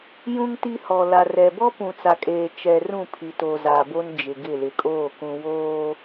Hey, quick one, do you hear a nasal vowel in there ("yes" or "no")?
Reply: yes